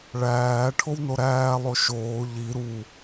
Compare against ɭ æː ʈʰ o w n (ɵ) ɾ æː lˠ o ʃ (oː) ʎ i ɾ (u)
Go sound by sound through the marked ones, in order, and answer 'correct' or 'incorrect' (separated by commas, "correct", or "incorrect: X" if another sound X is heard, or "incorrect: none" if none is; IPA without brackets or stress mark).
incorrect: o, correct, correct